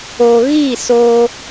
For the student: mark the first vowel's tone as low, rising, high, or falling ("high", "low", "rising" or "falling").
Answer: low